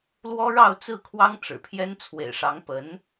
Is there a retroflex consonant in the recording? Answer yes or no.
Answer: yes